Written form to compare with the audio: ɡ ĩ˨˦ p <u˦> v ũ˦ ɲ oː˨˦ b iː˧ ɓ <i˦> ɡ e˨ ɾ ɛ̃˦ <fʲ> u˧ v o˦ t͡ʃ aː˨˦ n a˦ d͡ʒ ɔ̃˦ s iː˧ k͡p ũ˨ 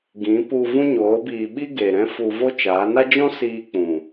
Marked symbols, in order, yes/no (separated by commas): no, yes, no